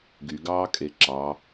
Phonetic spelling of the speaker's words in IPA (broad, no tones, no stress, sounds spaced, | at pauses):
ɡ y ɡ ɑː kʼ e ǁ ɑ